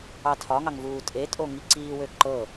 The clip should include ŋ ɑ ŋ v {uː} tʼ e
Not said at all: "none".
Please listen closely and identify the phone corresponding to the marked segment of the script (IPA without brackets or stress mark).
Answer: uː